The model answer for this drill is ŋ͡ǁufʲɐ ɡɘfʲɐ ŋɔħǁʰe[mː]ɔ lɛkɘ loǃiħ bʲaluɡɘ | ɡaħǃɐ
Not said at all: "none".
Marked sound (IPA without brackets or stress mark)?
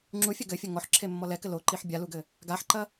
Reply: mː